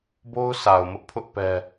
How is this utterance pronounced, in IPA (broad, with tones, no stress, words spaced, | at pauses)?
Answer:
bo˦ʊ̯ sa˨ʊ̯mʊ˦ʔpʰʊ˦ʔ pɛ˦